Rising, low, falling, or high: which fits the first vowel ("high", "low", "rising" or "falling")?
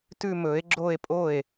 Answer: falling